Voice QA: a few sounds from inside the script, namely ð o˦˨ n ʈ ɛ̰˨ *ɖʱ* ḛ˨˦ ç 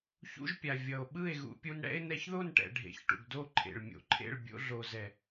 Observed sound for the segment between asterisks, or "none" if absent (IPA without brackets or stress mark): ɖʱ